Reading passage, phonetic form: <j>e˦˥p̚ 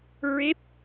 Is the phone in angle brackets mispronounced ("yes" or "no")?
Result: yes